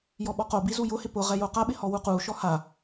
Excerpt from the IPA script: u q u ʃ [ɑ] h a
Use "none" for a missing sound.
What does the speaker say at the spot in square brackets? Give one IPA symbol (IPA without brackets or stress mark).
ɔ